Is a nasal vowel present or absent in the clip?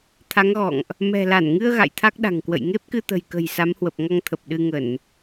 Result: absent